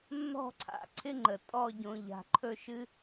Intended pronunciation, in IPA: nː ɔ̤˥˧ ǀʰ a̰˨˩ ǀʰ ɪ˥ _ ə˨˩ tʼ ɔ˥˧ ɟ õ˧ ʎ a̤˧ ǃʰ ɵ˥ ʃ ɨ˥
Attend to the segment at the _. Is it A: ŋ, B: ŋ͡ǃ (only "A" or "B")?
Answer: B